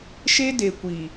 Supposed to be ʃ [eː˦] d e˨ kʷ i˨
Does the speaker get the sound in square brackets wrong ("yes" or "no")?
yes